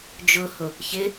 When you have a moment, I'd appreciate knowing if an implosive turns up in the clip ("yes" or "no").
no